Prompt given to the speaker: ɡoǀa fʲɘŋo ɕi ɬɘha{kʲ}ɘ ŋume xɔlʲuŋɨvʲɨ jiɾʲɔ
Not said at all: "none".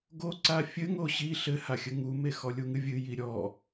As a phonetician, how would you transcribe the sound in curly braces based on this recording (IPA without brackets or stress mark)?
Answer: xʲ